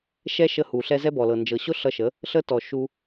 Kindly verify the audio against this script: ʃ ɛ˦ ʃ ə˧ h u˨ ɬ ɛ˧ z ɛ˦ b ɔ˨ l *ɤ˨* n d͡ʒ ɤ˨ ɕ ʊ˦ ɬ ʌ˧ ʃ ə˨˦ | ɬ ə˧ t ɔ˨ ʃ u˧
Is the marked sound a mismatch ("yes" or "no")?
no